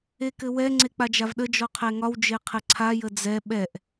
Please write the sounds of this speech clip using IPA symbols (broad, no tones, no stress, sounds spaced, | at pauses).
e k ɘ w ɛ ŋ͡ǀ e k͡p a d͡ʒ a v ɗ ə d͡ʒ ɔ qʰ ɛ ŋ ɒ w d͡ʒ e qʰ ɘ ǀʰ a j ə d͡z ɛ ɓ ɛ ʔ